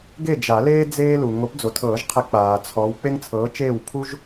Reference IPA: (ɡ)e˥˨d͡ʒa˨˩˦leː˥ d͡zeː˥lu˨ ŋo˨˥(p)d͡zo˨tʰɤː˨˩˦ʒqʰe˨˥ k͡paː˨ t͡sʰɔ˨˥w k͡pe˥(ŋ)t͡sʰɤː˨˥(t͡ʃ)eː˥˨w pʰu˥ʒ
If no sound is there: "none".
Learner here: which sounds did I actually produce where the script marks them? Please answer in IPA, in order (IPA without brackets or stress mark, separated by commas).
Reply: ɡ, p, ŋ, t͡ʃ